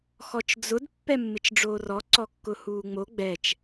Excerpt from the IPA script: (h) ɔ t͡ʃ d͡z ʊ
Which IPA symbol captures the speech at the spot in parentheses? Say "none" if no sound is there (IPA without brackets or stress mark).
x